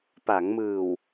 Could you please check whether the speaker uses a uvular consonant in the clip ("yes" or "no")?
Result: no